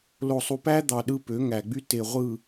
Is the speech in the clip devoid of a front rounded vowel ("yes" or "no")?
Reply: no